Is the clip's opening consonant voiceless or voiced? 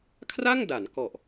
voiceless